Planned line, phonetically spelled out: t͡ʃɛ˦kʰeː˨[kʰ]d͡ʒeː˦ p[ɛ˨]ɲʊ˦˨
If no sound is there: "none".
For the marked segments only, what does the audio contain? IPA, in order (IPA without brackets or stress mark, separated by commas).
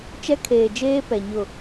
none, ɛ˨